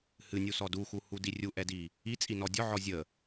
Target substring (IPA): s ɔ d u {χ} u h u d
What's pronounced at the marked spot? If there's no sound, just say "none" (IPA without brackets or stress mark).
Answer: x